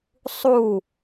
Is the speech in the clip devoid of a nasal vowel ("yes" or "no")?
yes